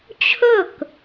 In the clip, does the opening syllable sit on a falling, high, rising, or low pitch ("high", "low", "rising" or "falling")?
falling